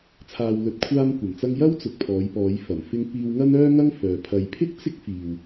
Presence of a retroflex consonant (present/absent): absent